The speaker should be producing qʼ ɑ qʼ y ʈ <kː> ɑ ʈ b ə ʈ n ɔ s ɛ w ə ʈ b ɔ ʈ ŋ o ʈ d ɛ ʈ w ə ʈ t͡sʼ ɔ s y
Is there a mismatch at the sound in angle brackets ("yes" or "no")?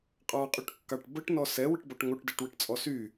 no